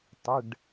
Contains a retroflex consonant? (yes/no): yes